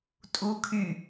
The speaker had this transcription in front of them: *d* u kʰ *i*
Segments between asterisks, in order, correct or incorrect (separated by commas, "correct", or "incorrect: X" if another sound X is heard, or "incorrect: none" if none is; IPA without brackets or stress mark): incorrect: tʼ, incorrect: y